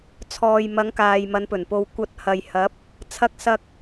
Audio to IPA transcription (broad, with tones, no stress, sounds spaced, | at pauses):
t͡sʰ ɔː˨ j m ɐ˨˧ ŋ k aː˨ j m ɐ˨˧ n p ɵ˨˩ n p o˧ w kʷ ɐ˧ t̚ h ɐ˨ j h ɐ˨˥ p̚ | t͡sʰ ɐ˧ k̚ s ɐ˧ k̚